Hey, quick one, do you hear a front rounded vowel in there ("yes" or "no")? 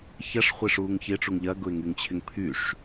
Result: yes